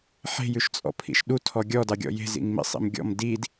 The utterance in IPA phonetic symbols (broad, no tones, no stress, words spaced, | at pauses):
ħe̤jʉʃ t͡sʼɔ̰pʰḭʃɗu tʰɔɡʲɔ dɑɡʲɔ̰je̤ zḭŋmḭsˤḭm ɡʲɔ̰m did